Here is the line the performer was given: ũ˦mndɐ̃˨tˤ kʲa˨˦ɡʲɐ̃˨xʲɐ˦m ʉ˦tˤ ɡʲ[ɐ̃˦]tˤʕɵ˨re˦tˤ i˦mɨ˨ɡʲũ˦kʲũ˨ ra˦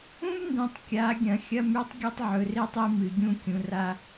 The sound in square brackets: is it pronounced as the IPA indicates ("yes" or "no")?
no